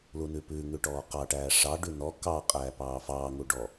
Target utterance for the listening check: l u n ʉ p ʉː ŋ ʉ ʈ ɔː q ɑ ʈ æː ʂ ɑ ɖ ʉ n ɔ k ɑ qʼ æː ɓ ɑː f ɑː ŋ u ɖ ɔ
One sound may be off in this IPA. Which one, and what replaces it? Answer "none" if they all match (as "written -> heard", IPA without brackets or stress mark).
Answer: ɓ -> p